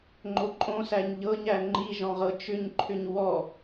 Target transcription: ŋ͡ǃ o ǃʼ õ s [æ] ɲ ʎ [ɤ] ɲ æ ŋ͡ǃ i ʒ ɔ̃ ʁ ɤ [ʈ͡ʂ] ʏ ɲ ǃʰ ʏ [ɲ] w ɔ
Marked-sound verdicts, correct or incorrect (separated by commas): correct, correct, incorrect, correct